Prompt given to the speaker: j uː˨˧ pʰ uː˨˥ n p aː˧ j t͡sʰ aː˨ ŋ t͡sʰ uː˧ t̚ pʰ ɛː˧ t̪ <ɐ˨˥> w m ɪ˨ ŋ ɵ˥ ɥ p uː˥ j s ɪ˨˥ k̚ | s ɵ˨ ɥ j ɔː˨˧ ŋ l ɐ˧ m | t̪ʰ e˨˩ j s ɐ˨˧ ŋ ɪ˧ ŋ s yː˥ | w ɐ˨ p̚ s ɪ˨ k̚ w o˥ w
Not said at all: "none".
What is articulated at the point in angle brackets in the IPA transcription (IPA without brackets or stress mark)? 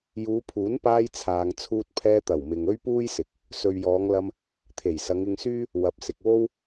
ɐ˨˩